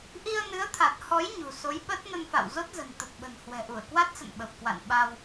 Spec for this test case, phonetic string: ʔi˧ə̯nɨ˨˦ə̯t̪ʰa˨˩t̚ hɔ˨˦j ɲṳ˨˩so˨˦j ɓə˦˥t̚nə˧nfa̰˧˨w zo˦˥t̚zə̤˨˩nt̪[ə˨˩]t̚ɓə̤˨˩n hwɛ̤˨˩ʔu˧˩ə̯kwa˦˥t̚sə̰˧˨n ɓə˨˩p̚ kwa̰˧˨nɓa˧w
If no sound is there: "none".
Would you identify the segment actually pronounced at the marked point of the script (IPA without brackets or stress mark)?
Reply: ə˨˩